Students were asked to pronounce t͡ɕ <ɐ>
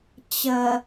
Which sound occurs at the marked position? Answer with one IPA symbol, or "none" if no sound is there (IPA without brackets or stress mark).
ɐ